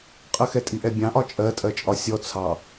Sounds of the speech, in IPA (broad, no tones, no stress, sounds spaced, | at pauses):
qʼ ə x ɛ tʼ i ʔ ɛ bʲ ɑ̃ ʔ ɒ t͡ʃʼ ɜ tʼ ɜ t͡ʃʼ ɒ sʲ ɔ t͡sʰ ɑ